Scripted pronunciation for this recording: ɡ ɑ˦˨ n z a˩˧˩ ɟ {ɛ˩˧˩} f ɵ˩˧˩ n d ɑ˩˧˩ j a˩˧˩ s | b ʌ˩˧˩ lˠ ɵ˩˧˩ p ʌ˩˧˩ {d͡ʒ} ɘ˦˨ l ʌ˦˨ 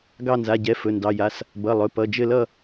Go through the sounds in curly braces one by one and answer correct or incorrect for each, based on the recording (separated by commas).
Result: correct, correct